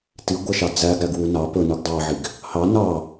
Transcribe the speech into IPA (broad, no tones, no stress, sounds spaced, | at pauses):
t i ɡʷ ɛ ʃ ɑ d͡z æ ɡ ɾ æ ɡ w u n ɑ p ɵ n u ɡ dˤ ɑ ʕ i ɡ | h ɑ n ɑ